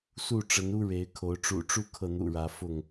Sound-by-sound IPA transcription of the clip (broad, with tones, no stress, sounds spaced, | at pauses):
s u˥˨ ʈ͡ʂ ə˨˦ n u˦ ɻ e˨˦ ɪ̯ kʰ o˨˦ ʊ̯ ʈ͡ʂ ṵ˨˩ ʈ͡ʂ u˦ kʰ ɤ˥˨ n̪ ṵ˨˩ ɻ ä˨˦ f ʊ˥˨ ŋ